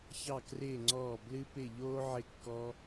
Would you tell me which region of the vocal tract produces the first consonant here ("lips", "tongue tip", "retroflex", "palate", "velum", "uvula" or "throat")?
palate